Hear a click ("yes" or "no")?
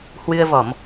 no